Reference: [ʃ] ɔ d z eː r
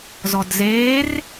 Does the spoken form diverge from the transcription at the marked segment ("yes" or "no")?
yes